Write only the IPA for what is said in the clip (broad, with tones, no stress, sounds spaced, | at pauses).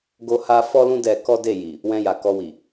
ɡ o˧ h a˧ f ɔ˦ l ũ˦ d ɛ˧ k ɔ˦ d e˦˨ j i˨ | w ɛ̃˧ j a˨ k ɔ˧ w i˨